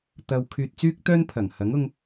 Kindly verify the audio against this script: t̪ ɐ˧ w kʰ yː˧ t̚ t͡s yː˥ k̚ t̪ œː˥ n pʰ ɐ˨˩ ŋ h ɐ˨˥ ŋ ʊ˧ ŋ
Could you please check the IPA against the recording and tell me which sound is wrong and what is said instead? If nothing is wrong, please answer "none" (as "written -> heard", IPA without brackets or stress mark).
none